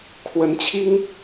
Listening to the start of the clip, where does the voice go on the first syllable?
rising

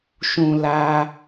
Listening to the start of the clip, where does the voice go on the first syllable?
low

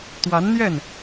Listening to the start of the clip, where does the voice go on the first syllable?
rising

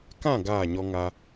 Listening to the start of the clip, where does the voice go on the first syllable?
falling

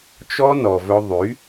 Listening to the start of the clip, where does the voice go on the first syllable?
high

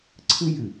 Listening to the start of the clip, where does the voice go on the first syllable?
high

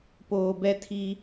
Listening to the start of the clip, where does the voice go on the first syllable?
low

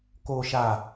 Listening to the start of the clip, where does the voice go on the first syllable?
low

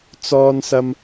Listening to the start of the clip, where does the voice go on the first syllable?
high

